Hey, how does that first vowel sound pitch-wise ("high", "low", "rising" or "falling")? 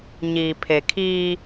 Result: low